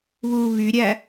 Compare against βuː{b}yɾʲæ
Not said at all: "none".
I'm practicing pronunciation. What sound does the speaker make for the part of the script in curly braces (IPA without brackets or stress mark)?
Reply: β